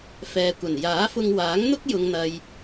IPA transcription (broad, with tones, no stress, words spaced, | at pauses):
fɛː˨kʷɐ˨˩n jaː˨˥fʊ˧ŋwaː˨˥ŋ n̪ʊ˥k̚jʊ˨ŋn̪ɐ˨j